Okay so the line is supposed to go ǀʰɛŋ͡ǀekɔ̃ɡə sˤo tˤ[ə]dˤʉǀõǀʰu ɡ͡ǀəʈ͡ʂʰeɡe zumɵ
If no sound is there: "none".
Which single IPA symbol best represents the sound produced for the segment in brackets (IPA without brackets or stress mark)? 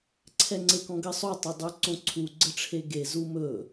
ɵ